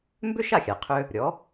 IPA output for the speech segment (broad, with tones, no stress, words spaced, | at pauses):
mbʏ˥ʃa˥˩xʲa˩qʰʏ˧ | ɾʲɔ˩˥